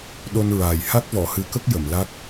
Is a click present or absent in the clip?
absent